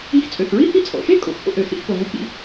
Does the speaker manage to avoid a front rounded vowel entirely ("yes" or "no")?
no